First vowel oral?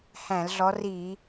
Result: no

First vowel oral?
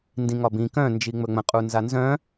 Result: no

